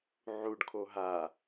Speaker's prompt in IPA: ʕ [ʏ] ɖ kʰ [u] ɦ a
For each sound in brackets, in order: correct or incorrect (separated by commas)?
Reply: incorrect, incorrect